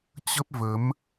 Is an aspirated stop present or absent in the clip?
absent